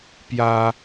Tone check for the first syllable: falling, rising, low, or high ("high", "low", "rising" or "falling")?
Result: high